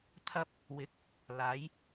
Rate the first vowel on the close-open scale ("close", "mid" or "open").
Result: open